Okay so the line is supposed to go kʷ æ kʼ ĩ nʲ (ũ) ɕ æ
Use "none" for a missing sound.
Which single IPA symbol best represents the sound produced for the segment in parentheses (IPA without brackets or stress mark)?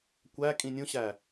ũ